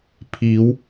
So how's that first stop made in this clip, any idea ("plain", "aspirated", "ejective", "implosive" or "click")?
aspirated